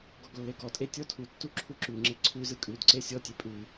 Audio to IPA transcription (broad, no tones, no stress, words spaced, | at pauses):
ɡɔɡlːeɡɔtʼe tʲɔtʰutːu ǁʰuǁʉŋ͡ǁe ǀʰʉzɯ kʼʉdǀe sʲɔtʲe pʼʉ